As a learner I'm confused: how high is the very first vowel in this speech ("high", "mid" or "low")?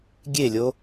mid